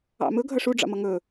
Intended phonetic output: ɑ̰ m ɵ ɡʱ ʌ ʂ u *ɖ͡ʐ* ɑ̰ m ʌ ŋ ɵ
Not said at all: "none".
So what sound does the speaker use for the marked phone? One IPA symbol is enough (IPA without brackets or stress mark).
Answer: ɖ͡ʐ